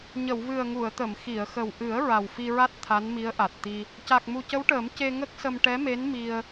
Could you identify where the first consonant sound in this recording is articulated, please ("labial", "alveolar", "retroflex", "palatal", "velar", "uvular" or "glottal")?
palatal